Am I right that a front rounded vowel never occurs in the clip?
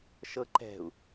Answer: yes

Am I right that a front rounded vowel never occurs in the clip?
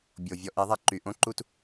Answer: no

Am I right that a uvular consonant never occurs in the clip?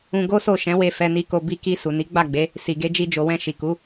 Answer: yes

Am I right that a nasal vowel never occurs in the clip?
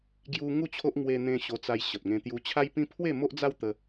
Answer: no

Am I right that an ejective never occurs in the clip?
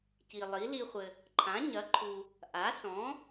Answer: yes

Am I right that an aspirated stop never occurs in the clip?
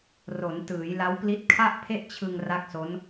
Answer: no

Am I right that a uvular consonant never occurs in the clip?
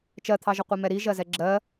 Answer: no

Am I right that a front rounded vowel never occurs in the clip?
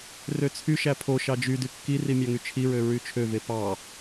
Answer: no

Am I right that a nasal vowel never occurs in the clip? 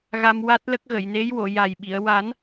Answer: yes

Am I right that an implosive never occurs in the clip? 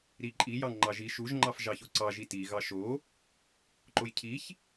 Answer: yes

